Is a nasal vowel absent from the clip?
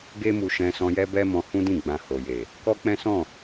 no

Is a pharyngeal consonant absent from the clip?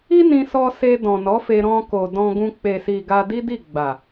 yes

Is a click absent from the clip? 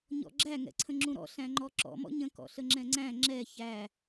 no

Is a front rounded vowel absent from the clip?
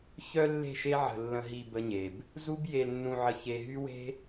no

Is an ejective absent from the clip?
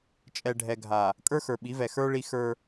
no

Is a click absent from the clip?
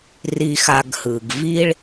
yes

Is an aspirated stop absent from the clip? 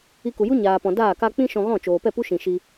yes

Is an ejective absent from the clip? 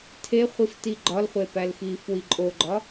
no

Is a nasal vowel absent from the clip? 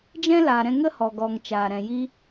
no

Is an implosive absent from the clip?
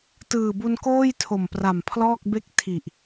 yes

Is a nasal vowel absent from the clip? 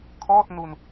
yes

